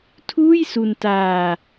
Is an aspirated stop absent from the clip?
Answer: no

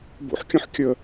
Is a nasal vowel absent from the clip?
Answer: no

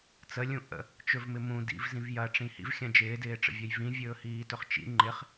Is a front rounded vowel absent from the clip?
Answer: yes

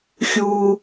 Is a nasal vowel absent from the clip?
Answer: yes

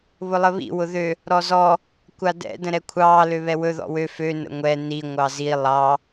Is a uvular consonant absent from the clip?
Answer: yes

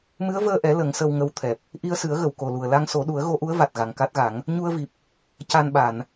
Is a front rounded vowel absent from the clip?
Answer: yes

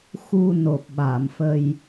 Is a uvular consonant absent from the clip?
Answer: yes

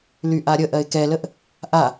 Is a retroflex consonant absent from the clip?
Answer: yes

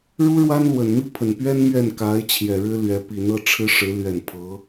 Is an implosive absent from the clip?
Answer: yes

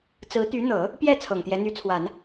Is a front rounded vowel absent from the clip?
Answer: no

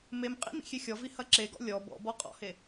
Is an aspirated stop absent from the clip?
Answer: yes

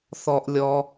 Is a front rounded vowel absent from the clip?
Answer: yes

